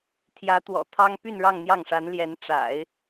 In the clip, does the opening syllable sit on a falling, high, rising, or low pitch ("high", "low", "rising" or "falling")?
rising